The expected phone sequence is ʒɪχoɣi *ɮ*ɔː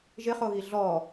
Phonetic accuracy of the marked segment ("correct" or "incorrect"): correct